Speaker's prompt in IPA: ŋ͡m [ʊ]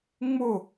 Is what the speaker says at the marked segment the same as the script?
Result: yes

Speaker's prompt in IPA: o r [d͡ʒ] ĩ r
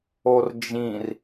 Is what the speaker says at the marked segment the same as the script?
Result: yes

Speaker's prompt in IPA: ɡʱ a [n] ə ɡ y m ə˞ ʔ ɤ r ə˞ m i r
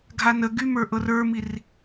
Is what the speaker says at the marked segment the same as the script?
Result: yes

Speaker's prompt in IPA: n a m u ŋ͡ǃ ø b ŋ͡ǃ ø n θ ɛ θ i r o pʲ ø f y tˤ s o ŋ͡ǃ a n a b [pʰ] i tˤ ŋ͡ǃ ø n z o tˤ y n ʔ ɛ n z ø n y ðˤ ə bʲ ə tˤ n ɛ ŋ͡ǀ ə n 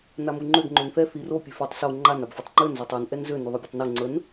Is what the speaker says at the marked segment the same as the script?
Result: no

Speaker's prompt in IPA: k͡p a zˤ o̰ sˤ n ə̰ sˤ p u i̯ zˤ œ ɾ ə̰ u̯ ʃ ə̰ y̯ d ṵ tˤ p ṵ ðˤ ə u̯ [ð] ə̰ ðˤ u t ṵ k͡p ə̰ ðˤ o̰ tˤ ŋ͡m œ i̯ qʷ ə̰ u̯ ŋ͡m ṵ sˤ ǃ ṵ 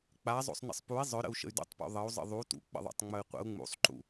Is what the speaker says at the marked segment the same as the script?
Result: no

